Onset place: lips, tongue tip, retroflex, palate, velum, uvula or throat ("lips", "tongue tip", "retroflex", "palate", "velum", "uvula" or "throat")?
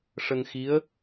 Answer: retroflex